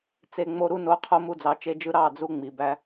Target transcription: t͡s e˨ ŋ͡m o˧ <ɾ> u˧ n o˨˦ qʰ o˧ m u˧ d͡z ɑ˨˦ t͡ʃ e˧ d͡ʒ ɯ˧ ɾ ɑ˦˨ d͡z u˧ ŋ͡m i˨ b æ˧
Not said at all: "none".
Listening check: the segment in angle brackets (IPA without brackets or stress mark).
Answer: ɾ